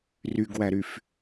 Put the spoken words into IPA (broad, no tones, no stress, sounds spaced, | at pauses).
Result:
r y ɡ w æ ɾ y f